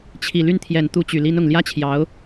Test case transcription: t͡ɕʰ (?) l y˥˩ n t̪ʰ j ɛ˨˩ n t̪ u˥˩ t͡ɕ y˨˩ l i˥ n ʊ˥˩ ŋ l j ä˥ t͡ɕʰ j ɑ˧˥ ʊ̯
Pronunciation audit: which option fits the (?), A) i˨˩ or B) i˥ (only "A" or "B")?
A